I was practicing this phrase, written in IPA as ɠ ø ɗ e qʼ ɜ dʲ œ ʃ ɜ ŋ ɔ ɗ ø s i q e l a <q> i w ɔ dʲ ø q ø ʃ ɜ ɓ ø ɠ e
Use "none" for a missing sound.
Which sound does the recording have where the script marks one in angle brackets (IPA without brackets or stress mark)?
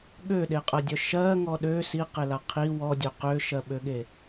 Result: qʰ